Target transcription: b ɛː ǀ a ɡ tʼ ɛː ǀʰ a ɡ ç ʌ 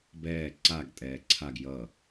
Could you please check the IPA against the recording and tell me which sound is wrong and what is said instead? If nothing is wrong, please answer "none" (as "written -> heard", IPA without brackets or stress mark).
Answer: ç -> j